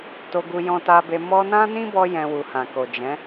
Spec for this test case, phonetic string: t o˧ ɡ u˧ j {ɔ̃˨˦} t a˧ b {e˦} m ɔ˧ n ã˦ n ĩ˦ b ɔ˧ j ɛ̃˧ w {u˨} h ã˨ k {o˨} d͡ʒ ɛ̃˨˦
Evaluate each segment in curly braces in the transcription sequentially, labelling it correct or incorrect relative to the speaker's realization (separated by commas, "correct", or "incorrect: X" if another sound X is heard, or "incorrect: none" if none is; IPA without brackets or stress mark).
incorrect: ɔ̃˧, incorrect: e˧, correct, correct